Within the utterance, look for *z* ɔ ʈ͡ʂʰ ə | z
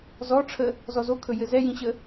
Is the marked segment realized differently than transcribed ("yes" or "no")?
no